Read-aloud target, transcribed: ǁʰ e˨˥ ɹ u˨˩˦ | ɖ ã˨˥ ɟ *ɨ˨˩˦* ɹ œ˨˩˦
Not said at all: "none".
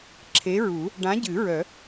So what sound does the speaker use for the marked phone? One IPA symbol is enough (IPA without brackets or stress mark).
ɨ˨˩˦